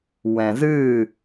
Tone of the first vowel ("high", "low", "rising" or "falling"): low